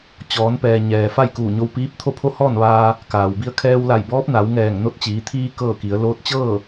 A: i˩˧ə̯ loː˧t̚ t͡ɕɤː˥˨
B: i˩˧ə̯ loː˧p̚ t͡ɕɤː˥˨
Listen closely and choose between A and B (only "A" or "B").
A